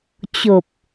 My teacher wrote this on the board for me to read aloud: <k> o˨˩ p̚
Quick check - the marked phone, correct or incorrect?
incorrect